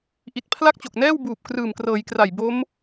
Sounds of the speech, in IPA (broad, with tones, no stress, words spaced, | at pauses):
ʔi˨˩t̚pʰla˥˩k̚t͡ɕo˨˩k̚nɛː˥˩w buː˨˩p̚krɯː˨˩mkrɤː˩˦jkra˨˩j bo˦˥m